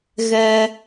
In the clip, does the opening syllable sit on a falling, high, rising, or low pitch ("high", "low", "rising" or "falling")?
high